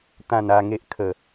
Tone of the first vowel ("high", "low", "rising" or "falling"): low